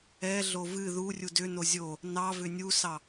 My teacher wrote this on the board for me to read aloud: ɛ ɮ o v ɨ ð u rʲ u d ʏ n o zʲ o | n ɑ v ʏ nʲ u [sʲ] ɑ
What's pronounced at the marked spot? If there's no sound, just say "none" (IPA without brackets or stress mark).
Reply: s